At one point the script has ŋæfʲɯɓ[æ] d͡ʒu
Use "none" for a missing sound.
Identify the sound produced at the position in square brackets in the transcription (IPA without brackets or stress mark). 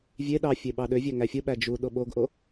æ